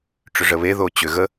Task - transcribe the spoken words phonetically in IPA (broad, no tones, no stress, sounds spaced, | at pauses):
ʈ͡ʂ ʏ ʐ ə β e ð o t͡ɕ ʏ ɣ ə